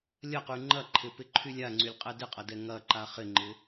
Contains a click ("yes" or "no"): yes